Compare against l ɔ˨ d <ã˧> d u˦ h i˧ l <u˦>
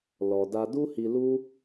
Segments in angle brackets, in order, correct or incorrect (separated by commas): incorrect, correct